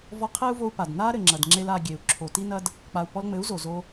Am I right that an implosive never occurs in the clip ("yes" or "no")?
yes